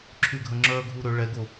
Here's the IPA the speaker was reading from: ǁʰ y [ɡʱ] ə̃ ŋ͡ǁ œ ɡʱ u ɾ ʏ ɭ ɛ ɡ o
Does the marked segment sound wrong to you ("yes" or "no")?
no